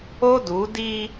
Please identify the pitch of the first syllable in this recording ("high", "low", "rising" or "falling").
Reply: high